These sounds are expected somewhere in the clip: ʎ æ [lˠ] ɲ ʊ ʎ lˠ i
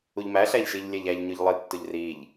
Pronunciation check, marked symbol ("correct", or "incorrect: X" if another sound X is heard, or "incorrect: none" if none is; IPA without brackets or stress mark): incorrect: ʎ